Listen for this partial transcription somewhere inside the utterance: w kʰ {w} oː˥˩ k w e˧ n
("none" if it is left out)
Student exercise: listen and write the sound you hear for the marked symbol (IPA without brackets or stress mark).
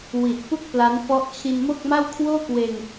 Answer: w